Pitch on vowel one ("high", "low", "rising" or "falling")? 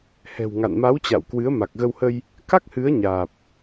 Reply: low